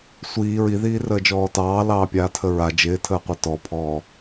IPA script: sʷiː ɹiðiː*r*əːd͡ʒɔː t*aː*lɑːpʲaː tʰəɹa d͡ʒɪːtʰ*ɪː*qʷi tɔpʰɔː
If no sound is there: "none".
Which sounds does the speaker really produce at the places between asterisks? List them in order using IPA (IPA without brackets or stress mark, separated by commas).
r, ɑː, əː